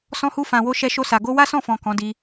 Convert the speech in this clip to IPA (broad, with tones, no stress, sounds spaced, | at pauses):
s ɔ̃˧ h u˧ f ã˨ w o˧ ʃ ɛ˧ ʃ o˧ s a˨ ɡ o˧ w a˦ s ɔ̃˦˨ f ɔ̃˨ k ɔ̃˨˦ d i˧